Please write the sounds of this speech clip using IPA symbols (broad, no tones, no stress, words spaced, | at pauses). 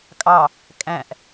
kʼɑ | kʼæ̃ʔ